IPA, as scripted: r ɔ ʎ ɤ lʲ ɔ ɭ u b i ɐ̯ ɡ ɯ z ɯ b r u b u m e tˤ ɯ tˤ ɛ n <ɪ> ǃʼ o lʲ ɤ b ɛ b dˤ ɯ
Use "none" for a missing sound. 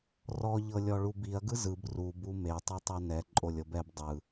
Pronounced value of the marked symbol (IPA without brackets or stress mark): ɛ